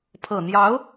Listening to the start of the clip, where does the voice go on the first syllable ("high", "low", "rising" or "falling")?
low